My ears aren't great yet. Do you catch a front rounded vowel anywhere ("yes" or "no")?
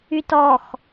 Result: yes